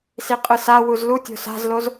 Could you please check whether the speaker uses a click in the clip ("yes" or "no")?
no